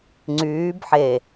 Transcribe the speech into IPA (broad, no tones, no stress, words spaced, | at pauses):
ŋ͡ǀyːb ħe